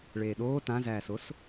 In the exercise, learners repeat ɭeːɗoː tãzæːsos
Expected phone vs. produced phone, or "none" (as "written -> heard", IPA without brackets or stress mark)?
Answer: none